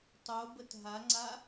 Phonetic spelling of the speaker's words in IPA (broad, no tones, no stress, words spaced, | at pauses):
tˤobət ɦaŋ͡ǀa